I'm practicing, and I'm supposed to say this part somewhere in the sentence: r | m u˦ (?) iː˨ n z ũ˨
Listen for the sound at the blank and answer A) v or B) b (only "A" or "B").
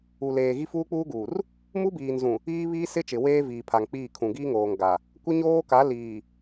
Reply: B